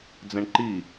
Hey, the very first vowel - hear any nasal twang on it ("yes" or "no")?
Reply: yes